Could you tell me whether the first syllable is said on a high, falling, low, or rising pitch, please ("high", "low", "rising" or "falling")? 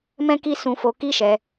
high